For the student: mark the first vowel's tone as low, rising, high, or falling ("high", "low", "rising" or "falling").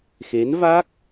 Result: rising